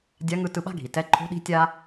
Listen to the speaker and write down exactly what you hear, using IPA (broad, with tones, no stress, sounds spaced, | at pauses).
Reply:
dʲ a˧˥ ŋ ɯ˧ t ɯ˧ ɓ a̤˥ ɡʱ i˩ t ɛ˧˥ ǃʰ o̤˧˥ ɗ i̤˧˥ tʲ a˥